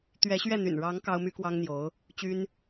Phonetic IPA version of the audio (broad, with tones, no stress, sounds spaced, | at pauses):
t̪ ɥ ɛ˧˥ ɕ ɥ ɛ˥˩ n̪ y̰˨˩ n ɻ ɑ˧˥ ŋ k ɑ˥ ʊ̯ m y˥ k w ɑ˥ ŋ n̪ j o˧˥ ʊ̯ | t͡ɕ y˥ n